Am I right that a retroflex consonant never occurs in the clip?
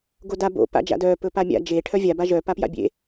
no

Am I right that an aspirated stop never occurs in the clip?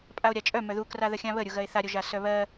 yes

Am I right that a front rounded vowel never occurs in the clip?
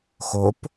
yes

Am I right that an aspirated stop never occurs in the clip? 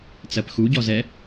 yes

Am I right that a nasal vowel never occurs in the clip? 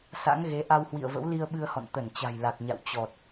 yes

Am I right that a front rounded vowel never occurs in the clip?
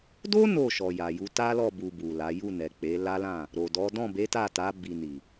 yes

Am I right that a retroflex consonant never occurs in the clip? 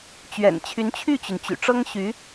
no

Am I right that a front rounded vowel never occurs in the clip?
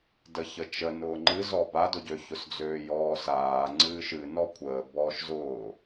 no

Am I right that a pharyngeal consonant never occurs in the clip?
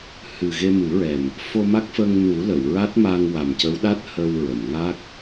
yes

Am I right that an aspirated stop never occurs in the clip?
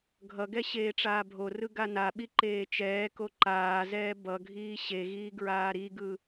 yes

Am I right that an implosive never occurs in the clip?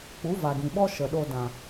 no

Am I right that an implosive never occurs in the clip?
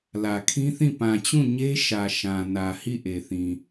yes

